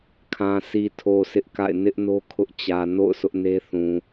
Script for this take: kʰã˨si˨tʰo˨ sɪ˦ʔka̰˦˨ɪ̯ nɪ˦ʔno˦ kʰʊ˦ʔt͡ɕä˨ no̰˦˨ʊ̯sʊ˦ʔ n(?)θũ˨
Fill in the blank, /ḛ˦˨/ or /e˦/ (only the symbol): e˦